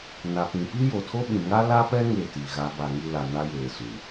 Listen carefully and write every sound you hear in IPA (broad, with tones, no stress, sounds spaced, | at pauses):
n a˨ p ĩ˨ p i˦ j o˨ tʰ o˦ ɓ ĩ˨ ŋ a˦ l a˦ p ɛ˦ ŋ e˦˨ t i˨ ɣ a˨˦ b a˨ ŋ i˦ l a˨ n a˦ j eː˨ s u˨